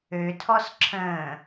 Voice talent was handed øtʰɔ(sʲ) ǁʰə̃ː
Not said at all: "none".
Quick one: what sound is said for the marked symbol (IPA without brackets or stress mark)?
s